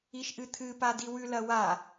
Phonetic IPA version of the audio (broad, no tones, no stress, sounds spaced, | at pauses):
i ʃ ʔ ɨ t̪ʰ ɨ p a d i w ʉ l ɐ w a